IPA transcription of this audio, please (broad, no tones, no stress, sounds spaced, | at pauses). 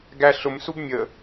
ɡ æ ɬ ʊ m s u b mʲ ə